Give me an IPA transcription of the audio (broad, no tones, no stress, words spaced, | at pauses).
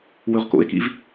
wɵʁko̰e̯kḭv